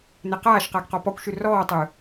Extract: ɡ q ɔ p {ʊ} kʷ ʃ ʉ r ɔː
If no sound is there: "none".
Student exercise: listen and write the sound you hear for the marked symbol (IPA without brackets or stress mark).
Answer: ɔ